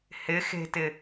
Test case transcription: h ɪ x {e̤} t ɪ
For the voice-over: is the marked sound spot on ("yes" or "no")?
yes